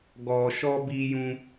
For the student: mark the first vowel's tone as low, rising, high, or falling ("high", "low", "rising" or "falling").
low